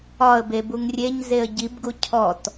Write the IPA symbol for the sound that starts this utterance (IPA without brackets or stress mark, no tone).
ɒ